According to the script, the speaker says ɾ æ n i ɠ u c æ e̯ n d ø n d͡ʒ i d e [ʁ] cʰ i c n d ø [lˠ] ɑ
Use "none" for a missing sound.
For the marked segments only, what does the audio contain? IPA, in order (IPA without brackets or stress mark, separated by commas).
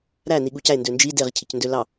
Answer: ʁ, l